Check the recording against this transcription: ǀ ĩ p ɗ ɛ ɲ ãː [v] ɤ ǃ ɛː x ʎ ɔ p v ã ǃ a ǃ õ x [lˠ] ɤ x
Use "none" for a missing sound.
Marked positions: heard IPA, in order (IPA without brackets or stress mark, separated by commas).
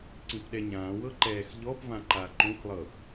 w, lˠ